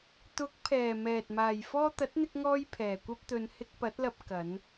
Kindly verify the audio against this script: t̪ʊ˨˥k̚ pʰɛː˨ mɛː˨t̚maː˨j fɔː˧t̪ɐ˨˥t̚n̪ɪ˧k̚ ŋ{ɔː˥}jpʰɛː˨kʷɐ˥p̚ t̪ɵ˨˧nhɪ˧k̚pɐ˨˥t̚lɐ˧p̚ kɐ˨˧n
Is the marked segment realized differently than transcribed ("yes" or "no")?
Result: no